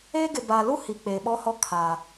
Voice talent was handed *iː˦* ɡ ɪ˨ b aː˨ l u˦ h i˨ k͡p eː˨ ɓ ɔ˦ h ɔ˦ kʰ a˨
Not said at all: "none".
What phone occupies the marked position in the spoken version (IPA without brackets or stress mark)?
eː˦